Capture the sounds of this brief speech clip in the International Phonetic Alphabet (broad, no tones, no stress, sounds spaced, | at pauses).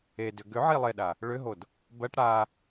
e d ʏ ɡ ʏ ʕ i lˠ e ɗ a | ɭ ʏ ɦ o d | b ɜ ʈ ɽ a